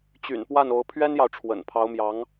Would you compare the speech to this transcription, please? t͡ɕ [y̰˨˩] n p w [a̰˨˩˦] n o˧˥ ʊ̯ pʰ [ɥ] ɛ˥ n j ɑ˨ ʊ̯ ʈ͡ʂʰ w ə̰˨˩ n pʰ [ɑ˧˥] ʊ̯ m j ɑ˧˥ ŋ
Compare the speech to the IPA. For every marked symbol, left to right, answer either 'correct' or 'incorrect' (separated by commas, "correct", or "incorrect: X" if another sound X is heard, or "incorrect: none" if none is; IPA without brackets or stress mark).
correct, incorrect: a˥˩, correct, correct